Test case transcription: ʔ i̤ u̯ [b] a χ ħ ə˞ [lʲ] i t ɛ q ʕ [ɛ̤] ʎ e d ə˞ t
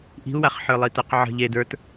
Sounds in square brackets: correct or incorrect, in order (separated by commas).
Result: incorrect, incorrect, incorrect